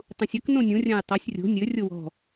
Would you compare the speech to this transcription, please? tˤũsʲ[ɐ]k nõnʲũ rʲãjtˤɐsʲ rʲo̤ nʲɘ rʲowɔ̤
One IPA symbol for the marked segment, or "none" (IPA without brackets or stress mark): ɐ